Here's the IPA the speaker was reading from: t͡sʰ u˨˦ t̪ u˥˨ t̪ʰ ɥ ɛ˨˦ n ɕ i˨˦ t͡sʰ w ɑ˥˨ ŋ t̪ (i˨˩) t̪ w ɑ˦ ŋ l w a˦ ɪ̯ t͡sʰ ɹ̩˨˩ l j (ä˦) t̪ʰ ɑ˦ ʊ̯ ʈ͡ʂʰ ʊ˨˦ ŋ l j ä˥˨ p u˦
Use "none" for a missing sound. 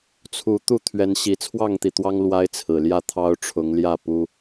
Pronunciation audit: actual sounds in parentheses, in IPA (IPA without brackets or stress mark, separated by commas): i˨˩, ä˥˨